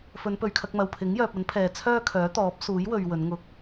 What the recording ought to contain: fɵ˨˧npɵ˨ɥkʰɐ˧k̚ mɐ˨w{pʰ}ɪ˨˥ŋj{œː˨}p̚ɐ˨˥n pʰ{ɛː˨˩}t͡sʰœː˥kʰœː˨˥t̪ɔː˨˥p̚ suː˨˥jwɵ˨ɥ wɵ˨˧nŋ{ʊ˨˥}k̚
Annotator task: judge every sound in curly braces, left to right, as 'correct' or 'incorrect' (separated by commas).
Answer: correct, correct, incorrect, incorrect